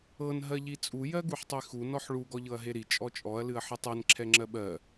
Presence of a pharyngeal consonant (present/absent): present